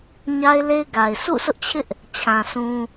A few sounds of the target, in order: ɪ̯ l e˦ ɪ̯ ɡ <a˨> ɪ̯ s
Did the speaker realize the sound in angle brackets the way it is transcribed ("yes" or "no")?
yes